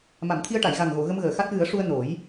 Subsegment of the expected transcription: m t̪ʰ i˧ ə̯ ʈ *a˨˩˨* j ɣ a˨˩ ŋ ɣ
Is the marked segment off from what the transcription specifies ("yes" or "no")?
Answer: no